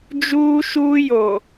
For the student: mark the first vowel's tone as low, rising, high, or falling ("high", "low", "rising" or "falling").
high